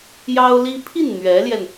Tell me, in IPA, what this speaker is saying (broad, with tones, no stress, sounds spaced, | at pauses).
j ɑ˥ ʊ̯ l i˥ pʰ i˥˩ n n̪ ɥ ɛ˧˥ l j ɛ˧ n